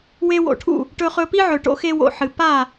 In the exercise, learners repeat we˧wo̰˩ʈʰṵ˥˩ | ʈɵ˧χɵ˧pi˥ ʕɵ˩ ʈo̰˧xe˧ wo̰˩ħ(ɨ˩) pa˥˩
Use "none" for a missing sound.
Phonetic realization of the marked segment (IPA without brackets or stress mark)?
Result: ɨ˩